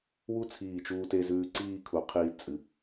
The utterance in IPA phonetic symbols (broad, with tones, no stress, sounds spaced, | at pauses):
w u˥ t͡sʰ iː˧˩ t͡ʃ uː˧ t e˧ z ʉː˧ ǀ iː˥˧ kʰ u˩˧ qʰ iː˧ t͡sʼ ɨ˩˧